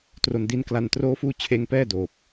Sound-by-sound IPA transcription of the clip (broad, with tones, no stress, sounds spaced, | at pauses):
t r o˧ n d i˦˥ n k l a˧ n t r oː˦˥ f uː˦˥ t͡ɕʰ eː˦˥ ŋ p ɛː˥˩ d oː˨˩ p̚